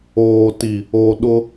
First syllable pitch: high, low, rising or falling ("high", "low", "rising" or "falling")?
low